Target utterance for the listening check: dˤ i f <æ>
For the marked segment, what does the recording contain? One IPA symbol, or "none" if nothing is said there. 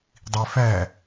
æ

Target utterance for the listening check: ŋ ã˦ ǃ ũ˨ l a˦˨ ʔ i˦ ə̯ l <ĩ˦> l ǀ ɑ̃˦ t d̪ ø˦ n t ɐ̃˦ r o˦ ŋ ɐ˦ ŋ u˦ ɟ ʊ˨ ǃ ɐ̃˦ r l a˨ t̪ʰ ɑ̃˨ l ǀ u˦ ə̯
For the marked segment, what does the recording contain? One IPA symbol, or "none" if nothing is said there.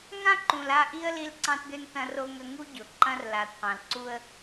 i˦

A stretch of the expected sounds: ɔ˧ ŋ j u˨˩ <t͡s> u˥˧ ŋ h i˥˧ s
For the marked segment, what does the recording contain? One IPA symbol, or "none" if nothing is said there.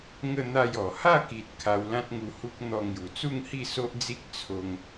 t͡s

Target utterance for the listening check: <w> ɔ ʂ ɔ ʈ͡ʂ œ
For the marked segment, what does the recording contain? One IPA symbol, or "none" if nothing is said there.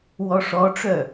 w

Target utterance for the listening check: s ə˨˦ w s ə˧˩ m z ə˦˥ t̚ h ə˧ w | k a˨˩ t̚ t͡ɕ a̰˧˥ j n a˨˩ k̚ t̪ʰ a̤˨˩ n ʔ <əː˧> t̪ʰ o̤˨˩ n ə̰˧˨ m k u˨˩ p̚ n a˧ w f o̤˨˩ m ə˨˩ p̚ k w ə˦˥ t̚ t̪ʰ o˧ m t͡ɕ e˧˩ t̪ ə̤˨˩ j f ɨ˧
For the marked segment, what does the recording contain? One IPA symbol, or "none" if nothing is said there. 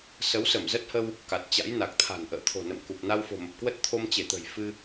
ə̰ː˧˨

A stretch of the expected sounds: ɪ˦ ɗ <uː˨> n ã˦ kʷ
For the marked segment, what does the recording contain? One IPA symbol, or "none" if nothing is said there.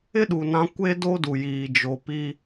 u˨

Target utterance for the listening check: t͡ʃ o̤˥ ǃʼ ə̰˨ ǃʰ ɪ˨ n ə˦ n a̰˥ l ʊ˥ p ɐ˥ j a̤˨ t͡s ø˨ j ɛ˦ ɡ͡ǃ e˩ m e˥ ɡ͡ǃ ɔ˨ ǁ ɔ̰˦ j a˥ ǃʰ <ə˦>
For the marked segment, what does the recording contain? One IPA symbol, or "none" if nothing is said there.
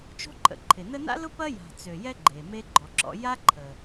ə˨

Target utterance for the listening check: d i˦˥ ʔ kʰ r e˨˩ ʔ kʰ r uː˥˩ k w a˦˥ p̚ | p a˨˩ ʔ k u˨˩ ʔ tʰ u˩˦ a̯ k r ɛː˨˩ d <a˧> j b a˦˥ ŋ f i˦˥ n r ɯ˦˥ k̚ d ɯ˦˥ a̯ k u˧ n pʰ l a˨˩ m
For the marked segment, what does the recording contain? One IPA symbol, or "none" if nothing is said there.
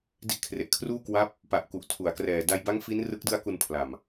a˧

